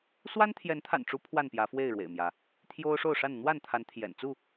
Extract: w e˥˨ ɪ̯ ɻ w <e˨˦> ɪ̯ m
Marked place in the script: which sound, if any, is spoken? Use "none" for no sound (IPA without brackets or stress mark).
ḛ˨˩